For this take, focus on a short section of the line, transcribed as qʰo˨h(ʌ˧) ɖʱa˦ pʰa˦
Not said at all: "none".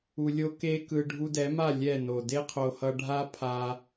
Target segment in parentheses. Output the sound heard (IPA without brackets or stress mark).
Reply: ʌ˧